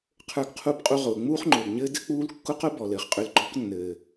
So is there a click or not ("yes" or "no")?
yes